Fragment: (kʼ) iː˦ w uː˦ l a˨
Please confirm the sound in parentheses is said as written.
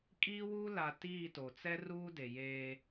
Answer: yes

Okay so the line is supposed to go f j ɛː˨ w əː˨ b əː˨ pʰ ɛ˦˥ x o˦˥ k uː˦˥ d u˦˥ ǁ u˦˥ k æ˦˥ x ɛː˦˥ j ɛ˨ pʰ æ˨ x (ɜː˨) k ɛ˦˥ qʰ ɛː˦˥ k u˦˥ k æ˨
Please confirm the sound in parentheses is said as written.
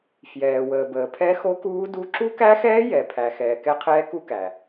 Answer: no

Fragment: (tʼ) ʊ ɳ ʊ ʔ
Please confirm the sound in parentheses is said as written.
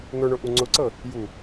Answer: no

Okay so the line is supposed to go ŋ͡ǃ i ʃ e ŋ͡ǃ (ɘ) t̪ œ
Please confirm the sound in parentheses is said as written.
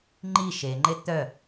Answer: no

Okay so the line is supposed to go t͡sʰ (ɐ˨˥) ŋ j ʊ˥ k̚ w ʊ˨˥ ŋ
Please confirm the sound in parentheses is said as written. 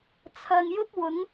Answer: no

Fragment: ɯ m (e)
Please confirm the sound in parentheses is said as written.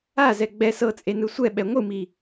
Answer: no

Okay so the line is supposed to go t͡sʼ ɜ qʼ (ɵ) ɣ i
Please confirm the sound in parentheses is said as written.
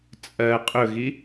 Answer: yes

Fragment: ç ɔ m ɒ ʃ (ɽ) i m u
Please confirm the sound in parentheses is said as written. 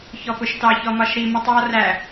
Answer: no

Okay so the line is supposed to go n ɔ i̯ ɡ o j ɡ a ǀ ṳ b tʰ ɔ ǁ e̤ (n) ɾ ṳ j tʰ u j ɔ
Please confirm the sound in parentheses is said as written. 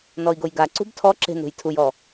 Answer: yes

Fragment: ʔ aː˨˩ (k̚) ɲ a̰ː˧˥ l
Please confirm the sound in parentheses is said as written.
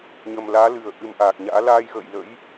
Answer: yes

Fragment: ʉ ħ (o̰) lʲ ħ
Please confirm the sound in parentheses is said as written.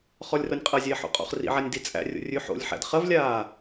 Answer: yes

